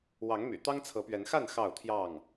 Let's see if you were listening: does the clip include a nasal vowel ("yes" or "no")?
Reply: no